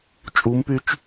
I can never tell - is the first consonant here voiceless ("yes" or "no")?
yes